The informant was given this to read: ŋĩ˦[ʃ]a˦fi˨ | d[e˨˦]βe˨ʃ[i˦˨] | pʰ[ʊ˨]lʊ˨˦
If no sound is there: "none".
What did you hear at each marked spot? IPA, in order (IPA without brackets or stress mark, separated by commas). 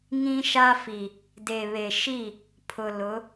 ʃ, e˨, i˦˨, ʊ˨